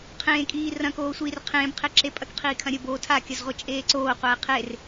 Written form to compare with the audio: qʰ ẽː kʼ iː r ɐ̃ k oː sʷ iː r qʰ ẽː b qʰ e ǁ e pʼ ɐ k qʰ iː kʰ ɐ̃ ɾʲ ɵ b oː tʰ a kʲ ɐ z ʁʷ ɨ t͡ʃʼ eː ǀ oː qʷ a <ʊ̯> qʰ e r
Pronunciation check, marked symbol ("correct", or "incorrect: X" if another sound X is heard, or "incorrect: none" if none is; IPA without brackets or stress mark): incorrect: ɪ̯